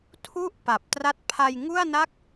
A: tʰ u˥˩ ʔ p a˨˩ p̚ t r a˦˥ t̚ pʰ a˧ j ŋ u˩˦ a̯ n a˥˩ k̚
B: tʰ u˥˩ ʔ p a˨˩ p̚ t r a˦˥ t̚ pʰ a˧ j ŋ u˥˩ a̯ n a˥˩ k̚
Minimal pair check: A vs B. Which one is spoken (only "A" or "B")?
B